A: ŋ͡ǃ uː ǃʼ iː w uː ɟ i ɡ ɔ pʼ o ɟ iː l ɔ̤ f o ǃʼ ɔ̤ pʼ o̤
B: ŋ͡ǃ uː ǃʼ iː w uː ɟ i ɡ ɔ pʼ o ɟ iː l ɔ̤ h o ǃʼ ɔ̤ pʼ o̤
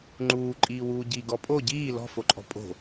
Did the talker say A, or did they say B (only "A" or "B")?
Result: A